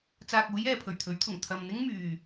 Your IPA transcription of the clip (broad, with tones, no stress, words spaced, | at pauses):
t͡saː˨k̚uː˨˧j ɛː˨pʰɵ˨˩ɥt̪ʰɵ˨˥ɥt̪ʰʊ˨˩ŋ t̪ʰɐ˨mn̪ɪ˥ŋmyː˨